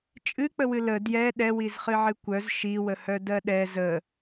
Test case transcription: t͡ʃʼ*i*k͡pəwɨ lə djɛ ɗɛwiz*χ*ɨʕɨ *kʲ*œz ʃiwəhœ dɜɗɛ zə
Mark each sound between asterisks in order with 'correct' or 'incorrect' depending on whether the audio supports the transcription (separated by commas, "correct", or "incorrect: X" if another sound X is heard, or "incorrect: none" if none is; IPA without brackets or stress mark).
incorrect: ɨ, correct, incorrect: kʷ